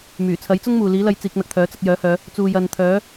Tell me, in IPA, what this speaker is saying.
myː˨˩t͡sʰɐ˨˥jt͡sʊ˥ŋmuː˨ liː˨˥lɐ˧j t͡siː˧k̚n̪ɐ˧k̚t̪ʰœː˨˥ t͡sɐ˧k̚jœː˨˥hœː˨˧ | t͡suː˨jɐ˨nt̪ʰœː˨˥

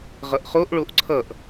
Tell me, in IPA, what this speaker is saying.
ʁʌʔχoʔɭoʔ ǀʰʌʔ

